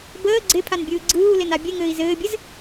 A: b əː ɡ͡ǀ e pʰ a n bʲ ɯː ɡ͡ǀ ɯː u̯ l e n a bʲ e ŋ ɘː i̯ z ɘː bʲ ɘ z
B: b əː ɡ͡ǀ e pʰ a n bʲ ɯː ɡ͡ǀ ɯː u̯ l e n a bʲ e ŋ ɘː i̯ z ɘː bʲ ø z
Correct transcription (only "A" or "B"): A